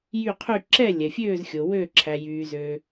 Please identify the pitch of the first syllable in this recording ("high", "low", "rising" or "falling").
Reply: falling